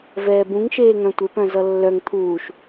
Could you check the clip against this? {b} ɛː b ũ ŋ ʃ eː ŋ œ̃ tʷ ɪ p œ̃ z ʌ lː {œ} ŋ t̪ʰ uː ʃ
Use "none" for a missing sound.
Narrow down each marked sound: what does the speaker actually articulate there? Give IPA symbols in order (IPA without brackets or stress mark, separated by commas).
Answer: v, œ